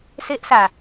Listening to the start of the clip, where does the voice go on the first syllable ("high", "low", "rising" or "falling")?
high